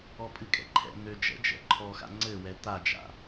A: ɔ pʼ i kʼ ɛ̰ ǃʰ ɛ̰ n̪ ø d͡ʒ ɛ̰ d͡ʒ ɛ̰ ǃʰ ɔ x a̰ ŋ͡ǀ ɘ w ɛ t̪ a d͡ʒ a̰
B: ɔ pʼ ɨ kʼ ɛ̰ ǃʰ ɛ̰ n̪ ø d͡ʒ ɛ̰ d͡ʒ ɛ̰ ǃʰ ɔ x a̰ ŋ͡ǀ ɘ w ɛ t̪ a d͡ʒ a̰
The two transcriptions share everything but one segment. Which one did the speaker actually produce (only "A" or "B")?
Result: B